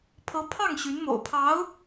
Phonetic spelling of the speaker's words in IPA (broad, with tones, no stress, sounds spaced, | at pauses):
pʰ ɤ˧˥ pʰ ɑ˥˩ ŋ ɕ y˧˥ n m o̰˨˩ ʊ̯ pʰ ɑ˧˥ ʊ̯